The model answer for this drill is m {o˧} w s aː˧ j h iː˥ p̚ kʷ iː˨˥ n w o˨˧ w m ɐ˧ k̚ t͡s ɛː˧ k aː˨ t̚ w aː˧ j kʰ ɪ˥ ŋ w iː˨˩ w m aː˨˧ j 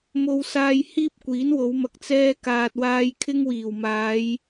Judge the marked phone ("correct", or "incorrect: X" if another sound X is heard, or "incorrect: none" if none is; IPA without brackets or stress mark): correct